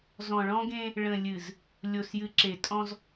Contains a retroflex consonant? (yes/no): yes